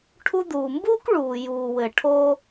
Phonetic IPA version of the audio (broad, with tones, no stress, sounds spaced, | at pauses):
ʈʰ u˧ d̪ uː˩ m b uː˥ k ɭ uː˩ j uː˩ w ɘ˩ ʈʰ oː˥